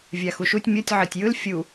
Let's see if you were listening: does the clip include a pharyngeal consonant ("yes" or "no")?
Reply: yes